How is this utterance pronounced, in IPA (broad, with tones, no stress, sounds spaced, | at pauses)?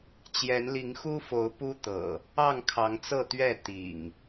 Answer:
t͡ɕ j ɛ˨˦ n l i˨˦ ŋ x u˦ f o˨˦ ʊ̯ p u˦ t̪ ɤ̰˨˩ | ɑ˥˨ ŋ kʰ ɑ˨˦ ŋ t͡s ɤ˥˨ t̪ ɥ ɛ˥˨ t̪ ḭ˨˩ ŋ